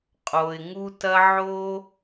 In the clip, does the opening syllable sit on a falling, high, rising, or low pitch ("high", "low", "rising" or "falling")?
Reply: low